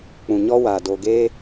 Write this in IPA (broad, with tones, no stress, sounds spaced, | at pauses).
k͡p ũ˨ ɲ ɔ˦ w aː˨ d o˨ ɡ eː˧